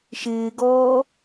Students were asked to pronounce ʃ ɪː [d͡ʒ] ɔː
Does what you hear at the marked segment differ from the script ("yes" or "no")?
yes